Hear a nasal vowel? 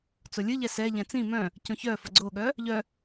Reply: yes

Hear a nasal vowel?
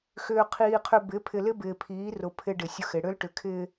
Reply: no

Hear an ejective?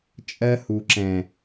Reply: yes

